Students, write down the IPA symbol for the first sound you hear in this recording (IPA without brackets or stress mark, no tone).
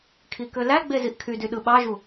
kʰ